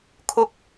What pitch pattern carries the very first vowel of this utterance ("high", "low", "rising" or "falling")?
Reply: high